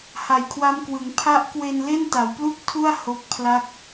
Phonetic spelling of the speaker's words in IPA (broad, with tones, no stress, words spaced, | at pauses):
ha˨˩jkʰwa˦˥mkwɯ˩˦ŋ pʰa˦˥ʔkwe˧n le˥˩nta˩˦wplu˥˩k̚tʰu˥˩a̯ ho˦˥k̚pʰla˥˩k̚